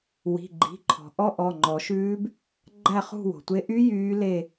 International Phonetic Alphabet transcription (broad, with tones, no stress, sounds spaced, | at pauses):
w i̤˩˧˩ ɡ͡ǃ i̤˩˧˩ ǃʰ ɔ̤˩ ʔ ɔ˦˥ ʔ ɔ˩˧˩ ŋ͡ǃ ɔ˨˩˦ ʃ ʉː˦˥ b | ɡ͡ǃ æ˥˧ χ ṳ˥˧ w o̤˩ tʷ e˦˥ ʔ y˦˥ j yː˦˥ l e˥˧